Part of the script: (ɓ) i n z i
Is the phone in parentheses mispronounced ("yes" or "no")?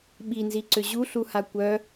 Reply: no